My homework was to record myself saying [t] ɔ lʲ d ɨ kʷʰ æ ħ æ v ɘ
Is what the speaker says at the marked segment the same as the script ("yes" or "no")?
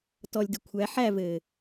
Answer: yes